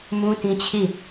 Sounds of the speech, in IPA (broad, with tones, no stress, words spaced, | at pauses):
mũ˦tĩ˦t͡ɕʰi˦˨